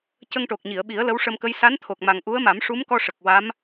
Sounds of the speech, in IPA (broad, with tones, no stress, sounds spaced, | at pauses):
c ə˧ ŋ ʈ o˨˩ k̚ ɲ i˨˩˨ ə̯ ɓ i˨˩˦ ə̯ l ə˧˥ w ʂ ə˧ m k ə˧˥ j s a˧˥ n t̪ʰ o˨˩ k̚ m a˨˩ ŋ ʔ u˧˥ ə̯ m a˨˩˦ m ʂ u˧˥ m k ɔ˧ ʂ ə˨˩ k̚ w a˧˥ m